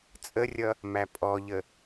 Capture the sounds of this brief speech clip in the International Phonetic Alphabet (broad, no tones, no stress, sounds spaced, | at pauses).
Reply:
t͡sʼ ə rʲ ʌ | m æ pʼ ɔ ʎ ə